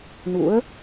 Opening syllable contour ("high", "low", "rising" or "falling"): rising